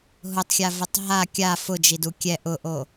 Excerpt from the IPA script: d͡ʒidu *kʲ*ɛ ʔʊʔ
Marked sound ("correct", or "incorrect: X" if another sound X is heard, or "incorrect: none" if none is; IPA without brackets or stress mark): correct